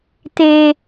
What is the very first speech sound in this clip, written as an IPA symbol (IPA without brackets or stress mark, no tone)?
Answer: t̪